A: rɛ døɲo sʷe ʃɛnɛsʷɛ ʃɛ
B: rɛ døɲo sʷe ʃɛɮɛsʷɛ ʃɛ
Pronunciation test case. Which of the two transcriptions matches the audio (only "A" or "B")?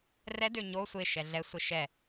B